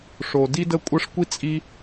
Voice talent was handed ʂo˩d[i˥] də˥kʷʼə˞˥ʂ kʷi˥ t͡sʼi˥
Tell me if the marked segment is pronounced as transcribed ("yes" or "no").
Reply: yes